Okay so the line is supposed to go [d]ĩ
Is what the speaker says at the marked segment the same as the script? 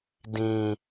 yes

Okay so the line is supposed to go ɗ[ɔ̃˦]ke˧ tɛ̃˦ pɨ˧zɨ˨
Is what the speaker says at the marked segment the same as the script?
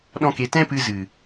yes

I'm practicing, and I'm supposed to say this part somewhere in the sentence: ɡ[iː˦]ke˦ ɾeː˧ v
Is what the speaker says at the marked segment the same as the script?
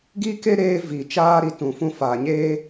no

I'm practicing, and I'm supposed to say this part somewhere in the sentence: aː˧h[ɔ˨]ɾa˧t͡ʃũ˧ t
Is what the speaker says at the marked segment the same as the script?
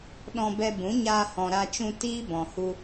no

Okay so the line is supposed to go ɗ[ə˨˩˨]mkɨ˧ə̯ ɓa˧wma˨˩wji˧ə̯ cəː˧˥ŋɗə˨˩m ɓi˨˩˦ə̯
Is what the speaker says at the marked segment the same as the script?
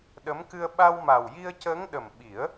no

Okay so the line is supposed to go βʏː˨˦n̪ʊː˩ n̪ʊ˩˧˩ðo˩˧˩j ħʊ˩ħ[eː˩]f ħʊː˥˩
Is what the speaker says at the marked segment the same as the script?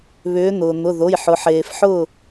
yes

